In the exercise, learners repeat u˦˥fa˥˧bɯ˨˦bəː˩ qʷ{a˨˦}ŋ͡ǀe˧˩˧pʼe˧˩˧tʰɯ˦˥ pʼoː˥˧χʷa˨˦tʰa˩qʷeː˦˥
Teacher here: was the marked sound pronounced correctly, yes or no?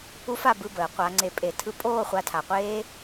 no